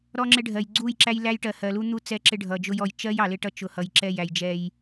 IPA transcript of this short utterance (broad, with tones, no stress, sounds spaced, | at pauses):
ɾ ɔ˦ ŋ͡ǁ ɪ˦ ɖʱ ɜ˨ j ɡ͡ǀ u˦˨ j ǁ æ˦ j l æ˦ j ʈ ɜ˨ h ɜ˨ l u˦ n̪ u˦ t͡s ɛ˦ ǁ ɪ˦ ɖʱ ʌ˨ d͡ʒ ʊ˦ j ɔ˨ j t͡ʃ ɜ˦ j ɑ˨ l ɪ˦ ʈ ʌ˦ t͡ʃ ʊ˨ h ʌ˨ j ǁ ɛ˦˨ j æ˨ j d͡ʒ ɛ˦ j